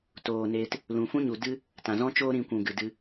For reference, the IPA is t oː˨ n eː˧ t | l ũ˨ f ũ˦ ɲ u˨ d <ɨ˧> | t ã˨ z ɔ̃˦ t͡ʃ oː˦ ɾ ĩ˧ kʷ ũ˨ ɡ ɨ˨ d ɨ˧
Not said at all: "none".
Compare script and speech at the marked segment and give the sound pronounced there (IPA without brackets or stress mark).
ɨ˦